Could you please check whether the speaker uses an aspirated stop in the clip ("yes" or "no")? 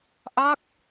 no